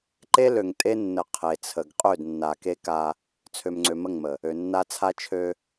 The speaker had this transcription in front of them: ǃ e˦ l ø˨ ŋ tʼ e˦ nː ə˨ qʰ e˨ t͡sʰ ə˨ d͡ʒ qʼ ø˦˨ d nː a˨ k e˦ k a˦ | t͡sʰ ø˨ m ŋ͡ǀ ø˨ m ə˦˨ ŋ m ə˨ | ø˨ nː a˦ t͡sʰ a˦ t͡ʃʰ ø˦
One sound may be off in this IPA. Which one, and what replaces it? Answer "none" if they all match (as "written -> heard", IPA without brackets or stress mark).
d͡ʒ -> ɡ